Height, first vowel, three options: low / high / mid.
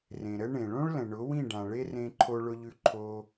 mid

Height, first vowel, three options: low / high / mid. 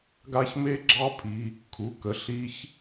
low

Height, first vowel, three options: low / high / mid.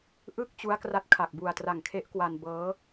high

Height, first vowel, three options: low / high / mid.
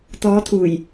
mid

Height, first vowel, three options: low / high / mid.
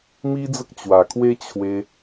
high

